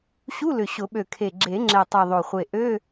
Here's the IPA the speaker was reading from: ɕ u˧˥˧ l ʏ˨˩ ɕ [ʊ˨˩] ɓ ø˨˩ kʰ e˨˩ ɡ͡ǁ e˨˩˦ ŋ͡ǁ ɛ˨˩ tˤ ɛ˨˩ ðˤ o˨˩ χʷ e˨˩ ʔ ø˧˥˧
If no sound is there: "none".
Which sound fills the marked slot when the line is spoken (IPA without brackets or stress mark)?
ʊ˨˩˦